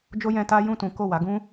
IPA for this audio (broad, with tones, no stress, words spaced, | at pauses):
d͡ʒo˦jɛ̃˧ta˦ jũ˦˨tũ˨˦ ko˦˨ wa˨˦ɡũ˦